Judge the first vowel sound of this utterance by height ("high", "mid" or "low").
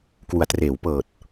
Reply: high